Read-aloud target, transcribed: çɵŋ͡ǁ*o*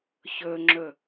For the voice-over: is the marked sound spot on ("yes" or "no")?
no